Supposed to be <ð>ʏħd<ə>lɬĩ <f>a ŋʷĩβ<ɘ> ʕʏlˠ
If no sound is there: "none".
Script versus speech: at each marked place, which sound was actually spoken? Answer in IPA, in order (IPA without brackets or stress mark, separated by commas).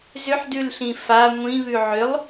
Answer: z, ʉ, f, ʉ